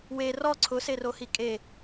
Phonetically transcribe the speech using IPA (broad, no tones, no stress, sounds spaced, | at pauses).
w e r ɔ ǀʰ ʊ s e r o h i kʼ e